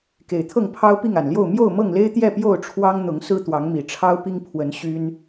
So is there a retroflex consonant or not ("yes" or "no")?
yes